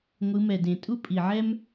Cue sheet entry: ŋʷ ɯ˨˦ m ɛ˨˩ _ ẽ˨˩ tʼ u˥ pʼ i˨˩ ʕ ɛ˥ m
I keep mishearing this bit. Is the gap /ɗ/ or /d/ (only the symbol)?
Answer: d